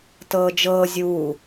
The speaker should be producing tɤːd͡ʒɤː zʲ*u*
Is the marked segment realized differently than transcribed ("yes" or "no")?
yes